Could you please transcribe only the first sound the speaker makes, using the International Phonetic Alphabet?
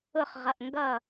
ʊ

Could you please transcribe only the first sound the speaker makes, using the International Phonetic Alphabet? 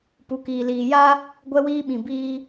p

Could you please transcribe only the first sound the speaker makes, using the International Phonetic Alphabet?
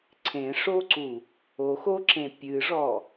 ǀʰ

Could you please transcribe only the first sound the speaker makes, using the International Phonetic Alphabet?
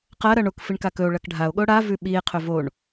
q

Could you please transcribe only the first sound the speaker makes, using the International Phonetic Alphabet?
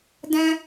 d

